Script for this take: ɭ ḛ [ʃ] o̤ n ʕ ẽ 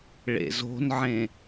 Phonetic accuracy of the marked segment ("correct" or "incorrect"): incorrect